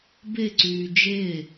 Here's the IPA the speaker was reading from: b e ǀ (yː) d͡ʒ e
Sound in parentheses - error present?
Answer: no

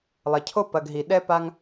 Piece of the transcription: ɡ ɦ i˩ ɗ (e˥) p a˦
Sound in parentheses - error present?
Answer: yes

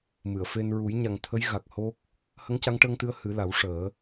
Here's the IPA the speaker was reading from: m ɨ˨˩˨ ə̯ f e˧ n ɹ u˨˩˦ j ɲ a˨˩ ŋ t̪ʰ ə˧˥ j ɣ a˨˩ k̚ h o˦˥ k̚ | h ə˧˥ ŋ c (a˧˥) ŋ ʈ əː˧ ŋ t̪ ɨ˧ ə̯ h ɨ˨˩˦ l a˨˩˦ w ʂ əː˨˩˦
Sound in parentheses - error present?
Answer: no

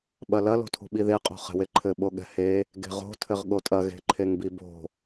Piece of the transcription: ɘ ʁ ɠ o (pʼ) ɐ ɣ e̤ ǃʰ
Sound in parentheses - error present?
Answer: yes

